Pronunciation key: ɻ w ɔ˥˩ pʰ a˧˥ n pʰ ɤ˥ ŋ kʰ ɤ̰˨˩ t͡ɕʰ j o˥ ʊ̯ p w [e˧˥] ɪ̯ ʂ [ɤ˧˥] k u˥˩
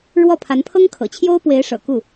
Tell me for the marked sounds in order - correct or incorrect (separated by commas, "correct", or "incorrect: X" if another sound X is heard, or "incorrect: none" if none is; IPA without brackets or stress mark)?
correct, incorrect: ɤ̰˨˩